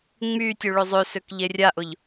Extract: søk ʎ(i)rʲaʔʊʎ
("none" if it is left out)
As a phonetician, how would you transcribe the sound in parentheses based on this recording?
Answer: e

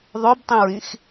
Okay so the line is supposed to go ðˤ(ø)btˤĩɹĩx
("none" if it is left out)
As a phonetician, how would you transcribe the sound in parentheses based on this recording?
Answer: ø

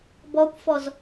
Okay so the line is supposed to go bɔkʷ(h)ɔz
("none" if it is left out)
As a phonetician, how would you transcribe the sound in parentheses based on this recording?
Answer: f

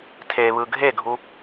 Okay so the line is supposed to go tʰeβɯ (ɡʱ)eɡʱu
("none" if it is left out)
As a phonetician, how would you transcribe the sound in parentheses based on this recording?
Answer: ɡʱ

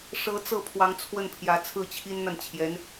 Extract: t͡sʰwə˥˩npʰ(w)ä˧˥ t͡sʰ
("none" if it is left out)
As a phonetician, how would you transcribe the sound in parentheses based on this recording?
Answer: j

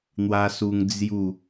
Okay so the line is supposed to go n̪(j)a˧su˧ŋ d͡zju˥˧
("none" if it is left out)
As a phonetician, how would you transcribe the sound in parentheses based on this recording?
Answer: w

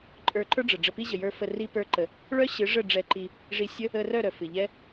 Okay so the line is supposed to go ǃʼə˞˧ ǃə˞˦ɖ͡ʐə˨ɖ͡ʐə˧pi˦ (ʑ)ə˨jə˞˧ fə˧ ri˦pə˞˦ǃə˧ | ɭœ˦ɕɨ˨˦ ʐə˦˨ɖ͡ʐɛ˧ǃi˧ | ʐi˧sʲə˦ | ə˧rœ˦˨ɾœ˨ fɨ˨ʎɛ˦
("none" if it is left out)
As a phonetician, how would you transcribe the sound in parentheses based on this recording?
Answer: ʑ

